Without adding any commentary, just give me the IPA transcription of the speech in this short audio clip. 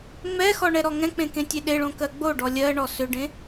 ŋ͡m ɛ x ɔ ɳ ɛ ɾ ɔ ŋ ɛ̃ k͡p ẽ k ẽ tʲ e ɗ e ɭ õ k ɜ ɡ͡b o ɖ ɔ lʲ ɜ ɳ ɔ s ʏ ɖ ẽ

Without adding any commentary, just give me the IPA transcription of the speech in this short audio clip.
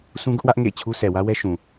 s ũ˦ ɡ ʊ˦ ʔ w ä˦ ʔ ŋ ḛ˦˨ ɪ̯ t͡ɕʰ u˦ sʰ ɛ˨ w ä˦ w ɛ˦ ʃ ũ˨

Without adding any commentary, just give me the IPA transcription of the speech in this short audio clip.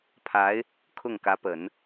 pʰ a˧˥ ɪ̯ | kʰ ʊ˥˩ ŋ k ä˧˥ p ə˨˩˦ n

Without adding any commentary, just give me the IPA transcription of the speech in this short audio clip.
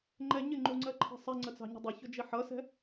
ŋ͡ǃ ɛ ɲ ɪ ŋ͡ǃ u ŋ͡ǀ ɜ ǃʰ ɛ̤ sˤ ɛ ŋ͡ǀ ə t͡s ɑ̤ ɲ ə̤ dˤ ɪ ç ʊ d͡ʒ i ħ ʌ s ɛ̤

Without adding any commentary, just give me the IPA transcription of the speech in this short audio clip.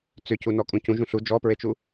t͡s ʏ c u n ɔ kʼ ũ c ũ ʒ ũ ɬ u d͡ʒ ɔ p ɹ e t͡ʃ u

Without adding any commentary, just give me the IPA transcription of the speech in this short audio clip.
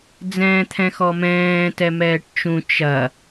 d͡z ɛ̃ː t̪ʰ ɛ̃ x ɔ m ɛ̃ː t ɛ m ɛː ʈ t͡ʃ ũ t͡ʃ ɐ

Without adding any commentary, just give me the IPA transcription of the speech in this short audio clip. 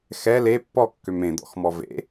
x ɛ l e pː ɔ kː ø m ẽ d̪ ɔ̰ x m ɔ v ḛ

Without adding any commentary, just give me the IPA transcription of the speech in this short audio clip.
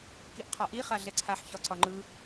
k i ʔ qʰ ɒ ʔ i χ a ɮ ɛ ǀʰ a ħ ç ɒ ǀ ɒ ŋ͡ǃ ɯ

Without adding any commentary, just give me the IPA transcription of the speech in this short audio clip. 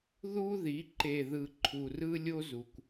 ð u˦ ð i˨˦ ǃ e˨ ð ɯ˨ ǃʰ u˨ r ɯ˦ lʲ o˦ z u˨ kʷ

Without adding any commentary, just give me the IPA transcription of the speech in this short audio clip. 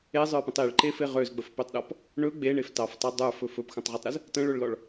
e zˤ ə˞ p ə̃ tˤ i ɭ ǃ e f e ʁ ø z ɡ͡b ə f p ø tˤ ɗ ɔ p | ɳ ɵ ɡ͡b e ɳ e f t ɑ f tˤ ɑ dˤ ə˞ f ɵ f ɵ p x ə̃ tˤ ʁ ɵ tˤ ɾ ə z | t ə̃ ɭ ɵ ɭ l ɔ ɭ

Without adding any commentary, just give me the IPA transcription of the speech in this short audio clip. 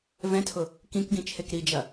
v ɛ̃ tʰ ʊ | k ĩ k ɡ ĩ t͡ʃʰ e k ɾ i d͡ʒ ɐ

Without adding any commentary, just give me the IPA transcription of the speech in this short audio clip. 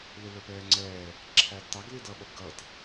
l ɪ l ə˞ p ɛː ŋ͡ǀ ɛː | ǁʰ æ d t ɑ ɡ l i d ʌ ɓ ʌ b ɡ ʌ t

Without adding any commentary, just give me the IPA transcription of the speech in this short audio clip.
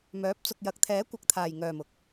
m œː˨˥ p̚ t͡s ʊ˨ k̚ j ɐ˨˥ k̚ t̪ʰ ɛː˨˥ kʷ ɐ˨ k̚ t̪ʰ aː˨˩ j ŋ œː˨˩ m ʊ˨ k̚

